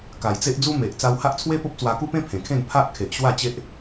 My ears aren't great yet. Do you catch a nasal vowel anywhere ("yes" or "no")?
yes